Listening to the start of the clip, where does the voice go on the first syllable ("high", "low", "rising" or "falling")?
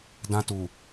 high